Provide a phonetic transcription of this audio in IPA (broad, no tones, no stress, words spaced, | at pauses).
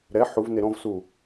ɾɛ ħuv neɾɔ̃vsu